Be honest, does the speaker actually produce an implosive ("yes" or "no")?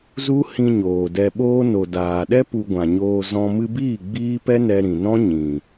yes